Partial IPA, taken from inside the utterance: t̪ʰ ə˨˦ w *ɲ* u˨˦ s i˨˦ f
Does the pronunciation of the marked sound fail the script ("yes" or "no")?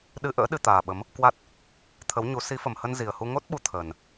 no